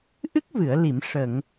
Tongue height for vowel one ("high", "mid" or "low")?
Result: high